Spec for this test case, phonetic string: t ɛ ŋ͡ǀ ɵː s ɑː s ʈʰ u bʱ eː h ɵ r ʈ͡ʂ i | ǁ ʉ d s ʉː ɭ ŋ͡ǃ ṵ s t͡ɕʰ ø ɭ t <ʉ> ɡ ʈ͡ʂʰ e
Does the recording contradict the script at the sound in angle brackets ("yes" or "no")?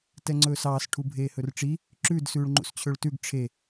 no